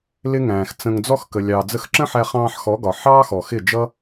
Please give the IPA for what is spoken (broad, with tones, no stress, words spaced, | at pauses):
lɪ˦ŋæ̃ː˨xt͡sə̃˧ŋ d͡zɔ˧xkə˨ lʲɑː˨d͡zə˧xǁə̃˦ħæ˧ χɑ̃ː˧ħxɔ˨˦ɡɒ˨ ħɑː˦xɔ˨xɪ˦˨d͡ʒʌ˦